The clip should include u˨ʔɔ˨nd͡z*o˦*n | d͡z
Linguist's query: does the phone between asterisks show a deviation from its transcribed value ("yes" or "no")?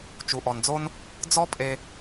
no